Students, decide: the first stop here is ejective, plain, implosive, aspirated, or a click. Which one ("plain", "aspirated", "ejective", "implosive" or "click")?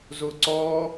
click